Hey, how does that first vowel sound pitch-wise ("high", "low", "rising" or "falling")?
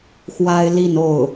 high